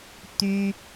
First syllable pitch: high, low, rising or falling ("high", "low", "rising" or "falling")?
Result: high